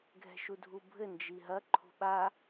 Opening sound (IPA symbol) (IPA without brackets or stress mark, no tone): ɡʱ